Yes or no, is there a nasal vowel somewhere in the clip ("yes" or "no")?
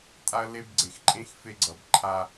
yes